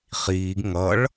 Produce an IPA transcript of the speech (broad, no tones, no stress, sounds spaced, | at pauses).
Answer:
χ iː ɡ ŋ ʌ ɭ